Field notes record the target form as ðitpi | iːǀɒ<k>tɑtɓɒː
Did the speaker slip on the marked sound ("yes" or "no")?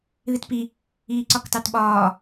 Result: no